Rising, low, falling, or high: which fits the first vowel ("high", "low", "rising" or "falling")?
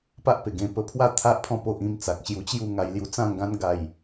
high